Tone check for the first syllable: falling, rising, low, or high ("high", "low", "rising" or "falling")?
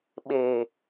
low